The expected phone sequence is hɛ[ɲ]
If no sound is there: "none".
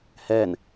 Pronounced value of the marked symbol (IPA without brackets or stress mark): n